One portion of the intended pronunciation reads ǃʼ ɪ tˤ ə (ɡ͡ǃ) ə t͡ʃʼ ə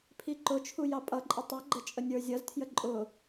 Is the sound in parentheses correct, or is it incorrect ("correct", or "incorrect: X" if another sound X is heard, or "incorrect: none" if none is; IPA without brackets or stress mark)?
correct